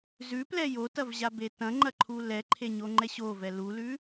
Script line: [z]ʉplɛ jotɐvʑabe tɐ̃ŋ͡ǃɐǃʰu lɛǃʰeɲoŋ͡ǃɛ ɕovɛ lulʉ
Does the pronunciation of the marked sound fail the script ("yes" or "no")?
no